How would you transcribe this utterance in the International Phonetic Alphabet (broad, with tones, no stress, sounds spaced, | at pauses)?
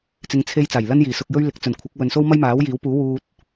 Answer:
t͡s ɪ˧ ŋ t͡sʰ e˧ j t͡s aː˨˩ j l ɐ˥ n j iː˨˩ s ʊ˧ k̚ j ɵ˥ ɥ l ɪ˨˥ k̚ t͡s ɵ˨˩ n kʷʰ ɐ˨˥ k̚ w ɵ˨ n s o˥ w m ɐ˥ j m aː˨˥ w j iː˨˥ w p uː˨˥ w uː˧ t̚